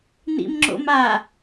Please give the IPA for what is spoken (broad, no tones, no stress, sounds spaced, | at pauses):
n ḭ m ŋ͡ǁ o̰ m a